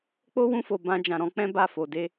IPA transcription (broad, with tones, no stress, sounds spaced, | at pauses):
k͡p o˦ w ũ˧ f o˨ b ã˧ d͡ʒ ã˨ ɾ ɔ̃˨˦ k͡p ɛ̃˦ b a˦˨ f o˨ d e˧